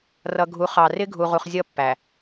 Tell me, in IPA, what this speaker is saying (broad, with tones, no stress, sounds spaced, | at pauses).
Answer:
r ʌ˨ ɡʱ u˨˦ χ ɑ˨ r ɪ˦ ɡʱ u˨ ʁ u˨ χ zʲ ʌ˦˨ pː æ˨